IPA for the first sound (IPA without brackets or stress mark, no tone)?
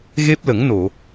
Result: ɣ